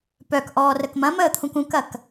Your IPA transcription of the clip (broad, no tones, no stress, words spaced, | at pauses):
pœk ʔɔːrəkmɐ̃məː t̪ʰũkũkɐk